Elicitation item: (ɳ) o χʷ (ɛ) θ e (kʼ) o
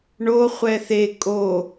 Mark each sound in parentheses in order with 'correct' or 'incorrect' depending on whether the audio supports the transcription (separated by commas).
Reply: correct, correct, correct